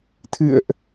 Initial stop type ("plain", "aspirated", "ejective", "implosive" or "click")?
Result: aspirated